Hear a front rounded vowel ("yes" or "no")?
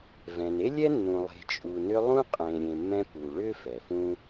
yes